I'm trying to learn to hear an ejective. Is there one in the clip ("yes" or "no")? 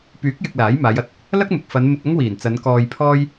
no